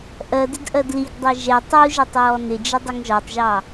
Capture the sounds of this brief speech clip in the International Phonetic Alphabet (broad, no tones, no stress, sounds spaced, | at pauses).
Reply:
ʔ ɜ d ɪ d ʔ ɜ d l i ɡ dˤ ɛ ʒ ɛ tˤ u ʒ ʌ tˤ ɹ ɔ n ɪ d͡ʒ ɪ dˤ ʊ ŋ ʒ ɒ tˤ ʒ ɑ